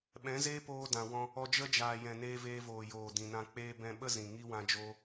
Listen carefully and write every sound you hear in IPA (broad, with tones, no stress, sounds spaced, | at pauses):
ɓ ɛ̃˨˦ z eː˦ p oː˧ d ã˨ w ɔ̃˧ | ɔ˧ d͡ʒ ə˦ d͡ʒ aː˨ j ɛ̃˨ n eː˧ v eː˧ v oː˨ j oː˨ d ĩ˨ n ã˧ k͡p eː˧ b ɛ̃˧ ɓ ə˦ z ĩ˨ ŋ i˦ w ã˦ d͡ʒ oː˦